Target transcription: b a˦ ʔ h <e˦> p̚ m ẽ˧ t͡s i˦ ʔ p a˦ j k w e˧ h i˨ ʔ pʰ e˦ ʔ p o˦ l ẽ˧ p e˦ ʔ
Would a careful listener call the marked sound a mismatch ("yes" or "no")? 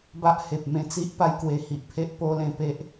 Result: yes